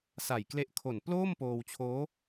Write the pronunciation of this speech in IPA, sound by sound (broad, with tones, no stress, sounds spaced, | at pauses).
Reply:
s a˨˩ j k l e˦˥ ʔ kʰ o˨˩ n p l oː˥˩ m p oː˧ w t͡ɕʰ oː˦˥